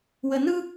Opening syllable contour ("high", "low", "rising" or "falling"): low